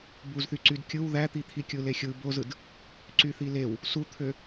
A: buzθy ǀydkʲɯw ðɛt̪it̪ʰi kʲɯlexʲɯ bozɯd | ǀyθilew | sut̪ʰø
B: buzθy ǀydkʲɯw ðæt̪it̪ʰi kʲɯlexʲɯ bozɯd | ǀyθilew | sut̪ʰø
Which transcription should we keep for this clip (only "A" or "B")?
B